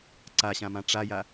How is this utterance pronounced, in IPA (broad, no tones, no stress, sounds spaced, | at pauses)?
ǀ a ɕ ã m ã ʈ͡ʂ a j a